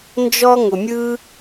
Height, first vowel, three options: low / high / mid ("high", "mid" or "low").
mid